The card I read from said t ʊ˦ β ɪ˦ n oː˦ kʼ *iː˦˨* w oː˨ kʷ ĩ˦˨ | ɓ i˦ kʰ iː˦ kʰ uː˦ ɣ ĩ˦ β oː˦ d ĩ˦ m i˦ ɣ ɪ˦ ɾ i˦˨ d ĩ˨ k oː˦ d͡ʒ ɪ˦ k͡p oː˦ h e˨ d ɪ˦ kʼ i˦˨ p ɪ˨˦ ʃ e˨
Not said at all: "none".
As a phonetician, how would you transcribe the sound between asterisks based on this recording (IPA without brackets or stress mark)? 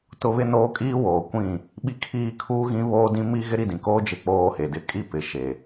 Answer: iː˦